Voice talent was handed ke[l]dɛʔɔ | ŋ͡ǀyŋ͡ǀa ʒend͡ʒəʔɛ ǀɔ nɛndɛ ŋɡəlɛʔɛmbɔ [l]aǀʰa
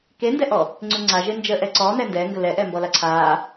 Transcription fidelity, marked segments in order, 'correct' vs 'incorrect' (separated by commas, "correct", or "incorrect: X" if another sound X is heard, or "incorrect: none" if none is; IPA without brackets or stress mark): incorrect: n, correct